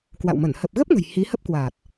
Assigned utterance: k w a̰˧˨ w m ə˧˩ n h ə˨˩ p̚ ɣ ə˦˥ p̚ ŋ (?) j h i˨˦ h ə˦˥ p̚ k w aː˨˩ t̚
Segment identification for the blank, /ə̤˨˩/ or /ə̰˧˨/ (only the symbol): ə̤˨˩